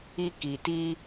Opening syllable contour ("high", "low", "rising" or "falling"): high